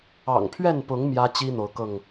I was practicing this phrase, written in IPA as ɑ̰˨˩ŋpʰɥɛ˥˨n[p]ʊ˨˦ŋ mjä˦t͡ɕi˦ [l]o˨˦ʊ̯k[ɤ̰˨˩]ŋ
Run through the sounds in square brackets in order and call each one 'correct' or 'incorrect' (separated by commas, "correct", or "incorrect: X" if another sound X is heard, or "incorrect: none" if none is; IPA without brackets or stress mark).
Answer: correct, incorrect: n̪, incorrect: ɤ˥˨